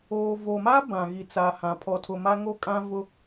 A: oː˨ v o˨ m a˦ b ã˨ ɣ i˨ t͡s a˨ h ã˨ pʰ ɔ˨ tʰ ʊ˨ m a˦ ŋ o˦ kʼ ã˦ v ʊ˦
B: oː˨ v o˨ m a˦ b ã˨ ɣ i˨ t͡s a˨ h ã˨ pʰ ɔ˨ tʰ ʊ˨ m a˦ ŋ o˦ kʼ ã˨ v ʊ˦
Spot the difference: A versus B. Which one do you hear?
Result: A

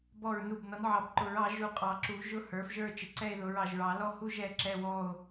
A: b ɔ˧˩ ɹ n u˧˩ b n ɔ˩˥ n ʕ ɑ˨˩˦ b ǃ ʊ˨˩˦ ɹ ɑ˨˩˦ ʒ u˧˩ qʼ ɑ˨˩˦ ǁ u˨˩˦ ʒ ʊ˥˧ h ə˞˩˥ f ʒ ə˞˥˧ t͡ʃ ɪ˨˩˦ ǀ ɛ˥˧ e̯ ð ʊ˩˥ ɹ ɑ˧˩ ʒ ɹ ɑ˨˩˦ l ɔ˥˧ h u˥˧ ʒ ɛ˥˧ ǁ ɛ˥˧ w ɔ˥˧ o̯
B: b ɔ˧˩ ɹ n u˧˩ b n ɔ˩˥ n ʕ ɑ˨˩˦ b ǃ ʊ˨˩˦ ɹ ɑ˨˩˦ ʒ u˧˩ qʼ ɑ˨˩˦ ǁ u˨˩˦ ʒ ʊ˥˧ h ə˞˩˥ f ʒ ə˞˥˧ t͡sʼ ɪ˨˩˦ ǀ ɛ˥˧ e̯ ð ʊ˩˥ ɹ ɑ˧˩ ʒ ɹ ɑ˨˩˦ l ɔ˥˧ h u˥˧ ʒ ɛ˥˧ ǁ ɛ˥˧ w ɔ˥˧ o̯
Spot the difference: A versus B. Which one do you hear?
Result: A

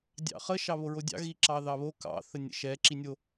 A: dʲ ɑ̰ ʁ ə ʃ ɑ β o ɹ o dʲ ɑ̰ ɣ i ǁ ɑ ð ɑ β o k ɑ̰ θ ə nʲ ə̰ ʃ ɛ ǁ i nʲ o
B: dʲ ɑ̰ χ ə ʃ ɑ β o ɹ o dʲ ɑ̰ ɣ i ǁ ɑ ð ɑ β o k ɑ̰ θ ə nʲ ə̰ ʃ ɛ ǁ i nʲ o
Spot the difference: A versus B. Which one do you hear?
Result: B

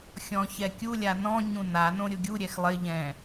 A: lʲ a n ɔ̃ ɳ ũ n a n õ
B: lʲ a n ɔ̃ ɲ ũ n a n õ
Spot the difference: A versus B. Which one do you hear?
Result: B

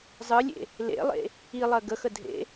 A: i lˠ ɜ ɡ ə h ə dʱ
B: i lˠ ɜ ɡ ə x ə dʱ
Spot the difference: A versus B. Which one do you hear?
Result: B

